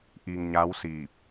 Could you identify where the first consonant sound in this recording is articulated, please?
glottal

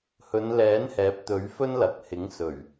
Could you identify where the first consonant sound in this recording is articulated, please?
glottal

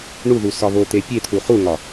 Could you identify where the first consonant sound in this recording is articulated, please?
retroflex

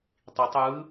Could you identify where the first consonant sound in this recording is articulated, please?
alveolar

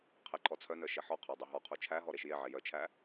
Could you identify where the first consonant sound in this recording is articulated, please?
uvular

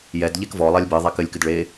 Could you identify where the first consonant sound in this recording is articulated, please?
palatal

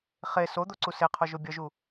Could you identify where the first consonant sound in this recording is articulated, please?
uvular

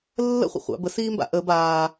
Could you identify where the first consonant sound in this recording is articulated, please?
alveolar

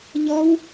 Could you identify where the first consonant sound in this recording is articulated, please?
palatal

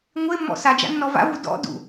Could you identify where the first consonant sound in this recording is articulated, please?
velar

